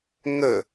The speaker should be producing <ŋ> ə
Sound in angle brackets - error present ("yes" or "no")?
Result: no